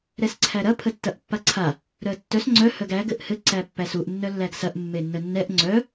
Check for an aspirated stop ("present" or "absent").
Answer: present